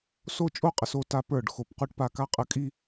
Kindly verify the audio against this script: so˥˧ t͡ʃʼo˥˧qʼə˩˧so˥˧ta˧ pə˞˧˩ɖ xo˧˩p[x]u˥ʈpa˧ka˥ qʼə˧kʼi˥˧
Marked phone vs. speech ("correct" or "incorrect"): incorrect